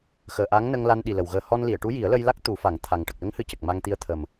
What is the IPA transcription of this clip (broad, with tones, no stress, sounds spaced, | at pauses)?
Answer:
x əː˨˩ ʔ a˧˥ ŋ n ə˧ ŋ l a˧ n ɗ i˨˩ l ə˨˩ w ɣ əː˨˩ h ɔ˧ n l i˨˩˨ ə̯ ʈ u˧˥ j i˨˩˦ ə̯ l ə˧ j l a˦˥ k̚ t̪ u˨˩˦ f a˨˩˦ ŋ t̪ʰ a˨˩ ŋ ʈ ə˨˩ k̚ l ə˧˥ ŋ h ɨ˨˩˦ c ə˨˩ k̚ m a˧ ŋ t̪ i˧ ə̯ t̪ʰ ə˨˩ m